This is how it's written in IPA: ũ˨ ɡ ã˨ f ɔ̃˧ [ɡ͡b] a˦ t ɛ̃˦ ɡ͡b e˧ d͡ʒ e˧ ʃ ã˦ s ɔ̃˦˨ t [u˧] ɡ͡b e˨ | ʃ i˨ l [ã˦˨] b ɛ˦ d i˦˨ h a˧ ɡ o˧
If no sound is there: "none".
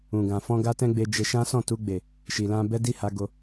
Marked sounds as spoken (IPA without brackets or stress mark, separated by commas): ɡ, u˧, ã˧